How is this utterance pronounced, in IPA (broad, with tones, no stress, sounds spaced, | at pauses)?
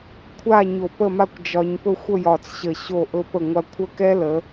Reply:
kʷʰ a˥˧ ɲ o˧˩ p ə˥˧ m a˥˧ kʷ d͡ʒ ɒ˧ ɲ p ɵ˥˧ xʷ ə˥˧ j ɒ˧˩ t͡s ɕ ə˧˩ ɕ o˧˩ ʔ ɵ˧ p ə˧˩ ŋʷ a˧ kʷʰ ə˥˧ k ɛ˥ l ə˩˧